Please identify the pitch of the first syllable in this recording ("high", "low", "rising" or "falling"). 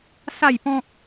falling